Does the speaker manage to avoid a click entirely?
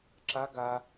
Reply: no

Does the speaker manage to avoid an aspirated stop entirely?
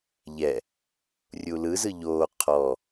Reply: no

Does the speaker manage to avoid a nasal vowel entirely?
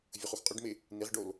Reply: yes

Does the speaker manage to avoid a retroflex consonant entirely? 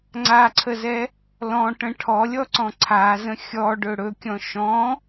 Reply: no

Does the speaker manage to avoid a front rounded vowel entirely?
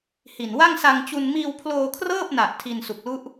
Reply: yes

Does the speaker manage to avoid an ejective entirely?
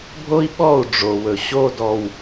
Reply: yes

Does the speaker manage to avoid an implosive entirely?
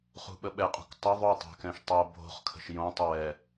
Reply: no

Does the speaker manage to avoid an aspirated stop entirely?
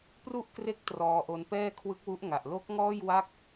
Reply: no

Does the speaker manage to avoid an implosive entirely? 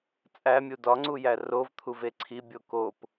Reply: yes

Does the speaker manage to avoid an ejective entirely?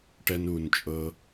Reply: no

